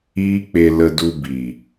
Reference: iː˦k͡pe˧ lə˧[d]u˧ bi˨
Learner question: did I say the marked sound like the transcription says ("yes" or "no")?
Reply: yes